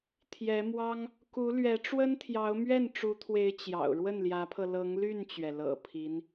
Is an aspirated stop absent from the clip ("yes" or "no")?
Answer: no